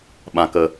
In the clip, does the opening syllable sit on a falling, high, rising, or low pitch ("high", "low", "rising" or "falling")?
low